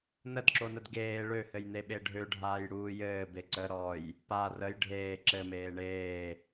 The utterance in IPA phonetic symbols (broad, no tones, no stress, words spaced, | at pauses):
nədǁonəd ɡeː ɭøhɘjne ɓeɖʱøɖʱaːj ɽuːjɘː beǀə ɾɔj | pa rəj ɖʱeː ǁɘmeː ɳeː